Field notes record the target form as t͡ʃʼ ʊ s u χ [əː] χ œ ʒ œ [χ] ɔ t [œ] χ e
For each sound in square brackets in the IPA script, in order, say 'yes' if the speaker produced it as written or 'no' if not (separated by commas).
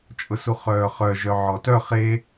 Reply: no, no, yes